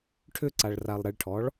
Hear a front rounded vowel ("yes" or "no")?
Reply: yes